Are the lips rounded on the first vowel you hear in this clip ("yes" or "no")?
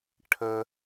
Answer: no